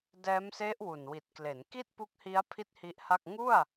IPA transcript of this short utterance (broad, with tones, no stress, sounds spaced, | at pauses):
d ɛː˦˥ m s e˦˥ ʔ w u˨˩ n w i˨˩ t̚ k l e˩˦ n k i˥˩ t̚ p u˦˥ k̚ h i˦˥ a̯ pʰ i˥˩ t̚ h i˦˥ ʔ h a˥˩ k̚ ŋ u˥˩ a̯